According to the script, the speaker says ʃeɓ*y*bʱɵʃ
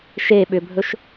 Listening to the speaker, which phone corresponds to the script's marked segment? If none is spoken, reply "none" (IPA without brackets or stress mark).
ʏ